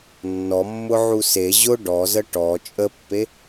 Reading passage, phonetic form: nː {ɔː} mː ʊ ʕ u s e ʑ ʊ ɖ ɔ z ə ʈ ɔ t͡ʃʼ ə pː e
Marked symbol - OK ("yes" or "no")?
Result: no